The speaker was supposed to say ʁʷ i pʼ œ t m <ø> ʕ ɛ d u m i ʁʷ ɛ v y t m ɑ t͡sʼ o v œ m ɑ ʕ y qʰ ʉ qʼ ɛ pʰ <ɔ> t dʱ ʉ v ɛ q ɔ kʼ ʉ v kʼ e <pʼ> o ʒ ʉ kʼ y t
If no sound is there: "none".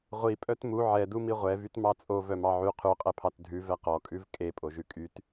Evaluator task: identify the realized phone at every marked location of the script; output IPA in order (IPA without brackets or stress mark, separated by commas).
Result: u, ɑ, pʼ